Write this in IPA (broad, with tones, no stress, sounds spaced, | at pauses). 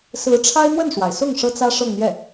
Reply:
s ɹ̩˧˥ ʈ͡ʂʰ a˥ ɪ̯ n̪ w ə˥˩ n ʂ w a˩ ɪ̯ s ʊ˥˩ ŋ ʂ ɤ˥ t͡s ä˥ ʂ ɤ˥˧ ŋ n̪ j ɛ˥˩